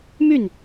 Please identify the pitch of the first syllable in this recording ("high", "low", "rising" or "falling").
falling